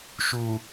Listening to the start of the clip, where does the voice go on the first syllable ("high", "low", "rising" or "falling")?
low